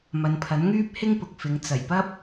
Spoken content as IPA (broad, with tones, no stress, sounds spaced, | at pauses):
m ɐ˨˧ n pʰ ɐ˨˥ n ŋ yː˥ p̚ h ɪ˥ ŋ p ʊ˨ k̚ f ɪ˨˧ ŋ t͡s ɐ˨˩ j p ɐ˥ p̚